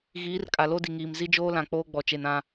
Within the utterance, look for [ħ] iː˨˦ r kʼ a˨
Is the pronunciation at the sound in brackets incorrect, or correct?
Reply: incorrect